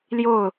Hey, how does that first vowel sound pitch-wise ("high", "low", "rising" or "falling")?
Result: falling